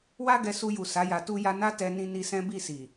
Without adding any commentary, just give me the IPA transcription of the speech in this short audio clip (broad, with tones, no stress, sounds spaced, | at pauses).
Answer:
w a˦ ɡ ɛ˧ s u˧ j u˨ s a˨˦ j a˧ t u˦ j a˦ n a˦ t ɛ˧ n ĩ˧ n i˧ s ɛ̃˦ b i˦˨ s i˨